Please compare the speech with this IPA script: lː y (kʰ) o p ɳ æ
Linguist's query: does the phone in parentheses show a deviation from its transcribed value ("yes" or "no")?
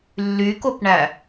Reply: yes